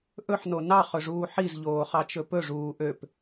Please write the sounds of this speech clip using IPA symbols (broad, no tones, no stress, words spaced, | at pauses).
ʔɵħno nɑχɵʐuː ħizʎoːχɑt͡ʃɵ pɵʐuː ʔøp